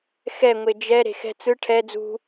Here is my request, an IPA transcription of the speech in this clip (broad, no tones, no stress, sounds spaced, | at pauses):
x ɛ ŋʷ e d͡ʒ ɛ ɾ e̤ x ɛ̤ t͡s ɯ ʈʰ ɛ d͡z ṳ